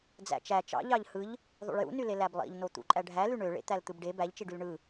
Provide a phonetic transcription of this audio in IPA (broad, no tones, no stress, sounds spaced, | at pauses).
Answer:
d͡z æ̰ t͡ʃ æ t͡ʃ ɑ̰ ʎ ɑ ʎ h ɯ ʎ | ðˤ ṵ ɭ j ṵ n y l e l æ b lˠ ḭ ʎ n o t̪ ṵ ǃʼ æ ɖʱ æ l y ɳ ø ɭ ḛ t̪ æ l t̪ ɯ b ɖ e b æ ʎ t͡ʃ i ɖ y l ɳ ɯ